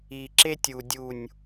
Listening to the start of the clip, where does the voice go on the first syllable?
low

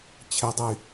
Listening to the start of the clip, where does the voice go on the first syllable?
rising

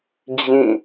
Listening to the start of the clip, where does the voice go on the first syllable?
falling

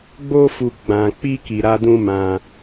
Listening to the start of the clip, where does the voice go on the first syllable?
high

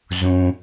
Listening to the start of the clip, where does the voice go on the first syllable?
low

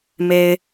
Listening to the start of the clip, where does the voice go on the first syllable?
low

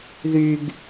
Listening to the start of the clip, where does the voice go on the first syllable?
high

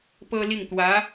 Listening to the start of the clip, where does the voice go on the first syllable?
high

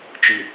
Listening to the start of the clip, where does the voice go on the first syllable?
low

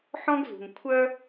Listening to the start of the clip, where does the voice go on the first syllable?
high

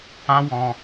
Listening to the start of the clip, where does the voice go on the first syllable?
high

